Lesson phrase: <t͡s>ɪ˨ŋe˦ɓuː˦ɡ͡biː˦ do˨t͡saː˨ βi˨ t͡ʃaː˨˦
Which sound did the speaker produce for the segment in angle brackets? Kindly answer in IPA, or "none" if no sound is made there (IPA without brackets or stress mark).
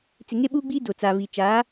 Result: t͡s